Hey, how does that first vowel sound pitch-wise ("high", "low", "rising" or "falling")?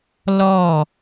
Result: falling